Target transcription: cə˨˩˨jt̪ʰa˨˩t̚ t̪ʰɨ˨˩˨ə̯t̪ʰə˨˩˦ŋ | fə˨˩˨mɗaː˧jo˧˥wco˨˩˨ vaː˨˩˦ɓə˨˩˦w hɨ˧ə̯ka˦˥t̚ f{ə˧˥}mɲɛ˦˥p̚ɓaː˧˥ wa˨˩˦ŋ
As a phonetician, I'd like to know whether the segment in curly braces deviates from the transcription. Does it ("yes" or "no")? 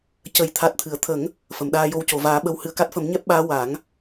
yes